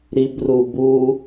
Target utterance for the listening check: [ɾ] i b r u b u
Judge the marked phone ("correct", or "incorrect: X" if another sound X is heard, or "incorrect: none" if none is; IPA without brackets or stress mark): correct